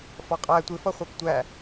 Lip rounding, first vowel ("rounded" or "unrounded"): rounded